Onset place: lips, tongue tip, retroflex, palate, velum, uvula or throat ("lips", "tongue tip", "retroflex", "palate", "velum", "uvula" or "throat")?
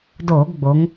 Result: tongue tip